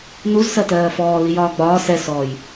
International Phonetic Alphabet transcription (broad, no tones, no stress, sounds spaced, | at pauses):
n u z s ɜ t ɜː f ɔː l i j ɒː ɡ͡b ɒː s ɛ s ɔː j